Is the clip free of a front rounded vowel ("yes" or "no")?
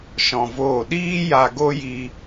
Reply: yes